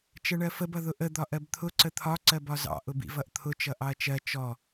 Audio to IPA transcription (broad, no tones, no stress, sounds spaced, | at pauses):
t͡ʃ ɜ ɳ ɜ f ə b ʌ ð ʊ ʔ ə d̪ ɒ ʔ ɜ b t̪ʰ ʊ ǀ ə t̪ʰ ɒ ǀ ɜ b ɒ z ɑ̰ ʔ ʊ b ḭ v ʌ ʔ t̪ʰ ʊ t͡ʃ ʌ ʔ ɑ ɐ̯ t͡ʃ ɜ t͡ʃ ɔ